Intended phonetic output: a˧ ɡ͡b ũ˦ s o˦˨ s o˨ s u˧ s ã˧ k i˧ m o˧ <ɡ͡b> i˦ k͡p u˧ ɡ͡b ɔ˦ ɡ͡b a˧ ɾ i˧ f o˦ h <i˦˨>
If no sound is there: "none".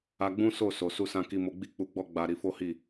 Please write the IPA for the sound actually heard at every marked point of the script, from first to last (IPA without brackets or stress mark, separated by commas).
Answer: ɡ͡b, i˦˨